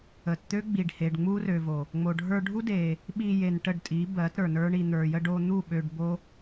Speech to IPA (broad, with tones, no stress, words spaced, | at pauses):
ə˨tt̪ø˦ɡ͡bi˨ɖ he˨ɖŋ͡mu˦rø˨vo˨ | ŋ͡mo˨ɖʱə˞˧ɖʱu˦ de˧ | ɓi˧ je˧nʈə˦˨ɖtʼi˨˦ bɜ˨˦tɾə˞˨nə˞˦ɳi˧ n̪ə˞˨jə˧ɖo˧ n̪u˦˨ɓø˧ɖ bo˦